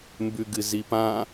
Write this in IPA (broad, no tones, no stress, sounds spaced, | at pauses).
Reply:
m b ʉ ɡ ɨ z i p ã